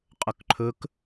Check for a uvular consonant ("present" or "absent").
present